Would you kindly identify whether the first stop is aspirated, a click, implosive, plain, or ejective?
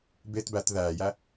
plain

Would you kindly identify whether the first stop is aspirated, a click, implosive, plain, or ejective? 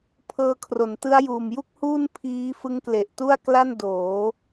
aspirated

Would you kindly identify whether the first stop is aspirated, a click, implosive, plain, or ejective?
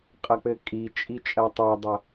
ejective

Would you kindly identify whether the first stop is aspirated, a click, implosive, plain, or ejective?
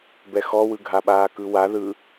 plain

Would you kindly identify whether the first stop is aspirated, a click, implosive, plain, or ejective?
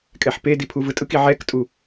ejective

